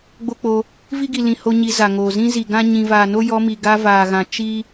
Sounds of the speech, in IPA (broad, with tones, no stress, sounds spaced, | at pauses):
ɡ͡b o˦ k͡p o˧ | v i˦ ɡ i˨ l ĩ˨ h o˦ ɲ i˧ z a˨ ŋ oː˨ z ĩ˦ z i˨ ɡ ã˦ ɲ ĩ˨ v aː˨ n o˦ j ɔ˧ m i˨ ɡ a˧ v aː˨ ɣ ã˨ t͡ʃ i˦